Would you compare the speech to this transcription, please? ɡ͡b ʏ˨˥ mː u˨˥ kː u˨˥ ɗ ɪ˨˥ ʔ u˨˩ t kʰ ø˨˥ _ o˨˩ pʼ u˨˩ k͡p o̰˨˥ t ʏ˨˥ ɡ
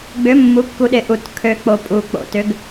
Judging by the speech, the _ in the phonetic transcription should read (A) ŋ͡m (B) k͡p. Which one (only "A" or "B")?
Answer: B